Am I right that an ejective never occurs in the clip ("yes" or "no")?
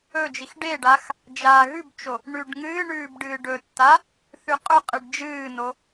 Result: no